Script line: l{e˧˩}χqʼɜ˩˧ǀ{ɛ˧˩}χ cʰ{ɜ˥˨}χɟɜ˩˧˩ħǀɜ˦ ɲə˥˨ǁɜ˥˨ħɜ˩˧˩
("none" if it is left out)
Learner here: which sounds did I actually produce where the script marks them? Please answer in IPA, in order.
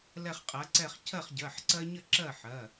ɛ˧˩, ɛ˧˩, ɜ˥˨

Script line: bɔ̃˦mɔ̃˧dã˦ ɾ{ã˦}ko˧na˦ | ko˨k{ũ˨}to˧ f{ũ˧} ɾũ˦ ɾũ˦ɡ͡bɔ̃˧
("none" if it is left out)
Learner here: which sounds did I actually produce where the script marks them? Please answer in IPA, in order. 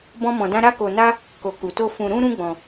a˦, u˨, ũ˧

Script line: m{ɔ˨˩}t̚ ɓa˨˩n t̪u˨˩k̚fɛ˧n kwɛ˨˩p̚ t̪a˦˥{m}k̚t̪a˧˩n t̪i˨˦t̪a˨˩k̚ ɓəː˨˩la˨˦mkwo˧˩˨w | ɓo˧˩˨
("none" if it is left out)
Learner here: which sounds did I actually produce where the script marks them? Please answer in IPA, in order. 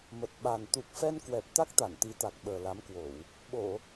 ə˨˩, none

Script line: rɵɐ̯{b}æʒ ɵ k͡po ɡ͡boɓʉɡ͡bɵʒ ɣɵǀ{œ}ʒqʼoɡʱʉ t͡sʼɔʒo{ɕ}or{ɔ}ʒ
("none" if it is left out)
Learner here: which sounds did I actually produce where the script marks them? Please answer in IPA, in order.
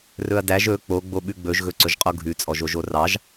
d, ɵ, ʒ, ɑ

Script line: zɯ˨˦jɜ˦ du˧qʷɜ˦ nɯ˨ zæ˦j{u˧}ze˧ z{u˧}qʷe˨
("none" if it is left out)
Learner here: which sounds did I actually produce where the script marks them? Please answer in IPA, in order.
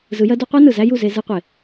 u˦˨, ɯ˧

